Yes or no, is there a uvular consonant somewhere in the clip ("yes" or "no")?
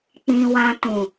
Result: no